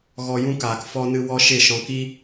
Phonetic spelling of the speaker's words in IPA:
ɣ ɔ˧ j ũ˦ k aː˨ k f ɔ˧ n ɨ˧ w ɔ˦ ʃ e˦˨ ʃ ɔ̃˧ k i˦

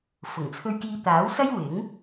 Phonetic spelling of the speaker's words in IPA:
f ʊ˨˩ ŋ t͡sʰ ɵ˧ ɥ k iː˧ t̪ aː˨˥ w s ɐ˥ j w ɪ˨˥ ŋ

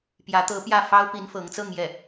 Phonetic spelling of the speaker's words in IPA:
p j ä˧˥ t̪ ɤ˧˥ p j ä˥˩ f ɑ˥ ʊ̯ p i˧˥ n f ɤ˧˥ ŋ t͡s ɤ˥˧ ŋ j ɛ˥˩

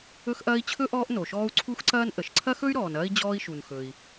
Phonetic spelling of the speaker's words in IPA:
ɵ˦ x ʔ ɐː˦ i̯ t͡ɕʰ ɵ˥ ʔ ɔː˦ ʔ n o˨ ʃ ɔː˥ u̯ ǀʰ u˥ x ǀ ɐː˥ n ʔ ə˩ ʃ ǀʰ ɐ˥ x ɵ˥ y̯ ɾ ɔː˨ n ɐː˥ i̯ d͡ʑ ɔː˥ i̯ ʃ u˨ n x ɵ˨ i̯

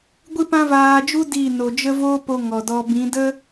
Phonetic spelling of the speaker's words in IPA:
ɡʷ ɨ˦ p ã˦ v aː˧ d͡ʒ u˦ d i˦˨ n o˨ d͡ʒ ə˦ v o˦ p o˧ ŋ ɔ˨ d ɔ˧ b ĩ˨˦ d ə˦

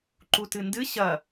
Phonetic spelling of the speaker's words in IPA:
ǃ u t ɨ n d ɨ ɕ ɐ

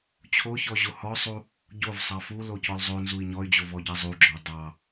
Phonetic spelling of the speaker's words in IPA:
t͡ɕʰ o ç ɔ ʑ o h ɔ sˤ u | ɟ o v sˤ ɑ f u l o c ɔ l zˤ o n z u i̯ ɲ ɔ y̯ d͡ʑ o v ɔ ɟ ɑ zˤ u ɡ͡ǁ ɔ dˤ ɑ

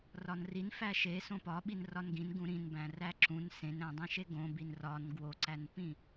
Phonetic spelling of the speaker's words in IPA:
r ɒ n r i n f æ ʃ e s õ p ɒ ɓ i n r ɒ n ɡ ĩ n ɡ ũ ɾ ĩ n b æ̃ r æ ǁ ũ n s ẽ n ɾ æ̃ dˤ ẽ ʃ e ɡ õ b i n r ɒ n ɡ w o ǀ æ n p ĩ

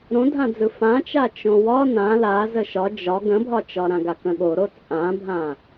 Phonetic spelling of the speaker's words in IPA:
ɾ õ dʱ ã d͡z ɯ f ã t͡ʃ a t͡ʃ õ w ɒ n ã l a z ə ʃ ɒ d͡ʒ ɒ ɡ ə̃ bʱ ɒ t͡ʃ ɒ ɾ ã ɡ a k ə̃ ɠ o ɾ o t͡sʼ ã bʱ ã

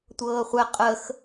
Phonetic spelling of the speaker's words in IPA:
tʷ ɤː χʷ ɛ qʼ ə x

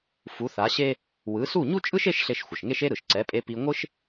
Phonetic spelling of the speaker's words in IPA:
f u˩˥ θ a˩˥ ɕ e˥ | w ɯ˩˥ s u˥˩ ɲ u˥ t͡ʃʼ ɯ˥ ʃ e˥ ʃ ɬ e˧ ʃ xʷ ʌ˩ ʃ ŋ e˥ ʃ e˥ ɾ ɯ˩ ʃ ǀ ɛ˩˥ pʼ e˧ p i˧ ŋʷ ɯ˥ ʃ

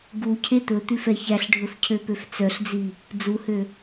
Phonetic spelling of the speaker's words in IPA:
ɡ u cʰ e t̪ ɵ t̪ ʉ f ɛ ç æ ɬ ɖʱ ɵ f cʰ ø p ø f t͡s œ ɬ d͡z i | d͡z u h ø

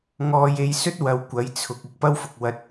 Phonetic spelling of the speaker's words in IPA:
ŋ ɔː˧ j e˧ j s ɵ˥ t̚ w ɐ˧ w kʷ ɐ˨˥ j t͡sʰ ʊ˨ k̚ ɪ˨˥ k̚ p ɐ˥ w f ʊ˨ k̚ w ɐ˧ t̚

